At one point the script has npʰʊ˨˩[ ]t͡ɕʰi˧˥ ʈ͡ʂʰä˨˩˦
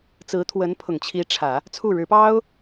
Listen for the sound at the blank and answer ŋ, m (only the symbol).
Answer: ŋ